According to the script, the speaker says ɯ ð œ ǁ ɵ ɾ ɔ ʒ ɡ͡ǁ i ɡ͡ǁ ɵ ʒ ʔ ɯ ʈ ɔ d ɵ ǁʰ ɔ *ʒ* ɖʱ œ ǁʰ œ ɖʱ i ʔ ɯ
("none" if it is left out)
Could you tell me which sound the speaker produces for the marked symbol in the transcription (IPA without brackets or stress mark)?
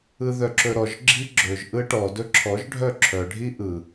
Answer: ʒ